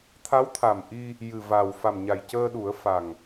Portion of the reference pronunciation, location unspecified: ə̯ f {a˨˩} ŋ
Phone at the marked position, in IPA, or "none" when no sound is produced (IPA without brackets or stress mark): a˨˩